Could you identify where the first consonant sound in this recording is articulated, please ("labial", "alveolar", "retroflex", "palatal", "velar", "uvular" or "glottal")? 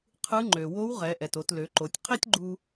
uvular